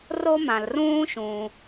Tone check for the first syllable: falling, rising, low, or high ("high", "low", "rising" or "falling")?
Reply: high